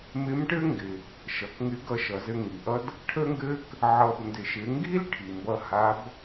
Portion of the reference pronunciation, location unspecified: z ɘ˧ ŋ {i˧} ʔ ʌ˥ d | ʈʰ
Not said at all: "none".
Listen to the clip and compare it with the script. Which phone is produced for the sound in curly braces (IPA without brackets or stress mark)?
i˩